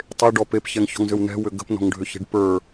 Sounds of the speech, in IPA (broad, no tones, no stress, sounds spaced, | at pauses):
tˤ e ɖ ɔ p e p ç ɛ ŋ ç ɔ̤ ŋ z ʏ w n ɛ̤ w ʏ ɡ ə̤ p n ɔ̤ ŋ ɖʱ ʏ ç e̤ ɖ p ə˞